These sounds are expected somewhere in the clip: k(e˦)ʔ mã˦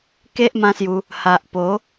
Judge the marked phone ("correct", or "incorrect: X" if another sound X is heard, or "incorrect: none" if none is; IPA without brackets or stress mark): correct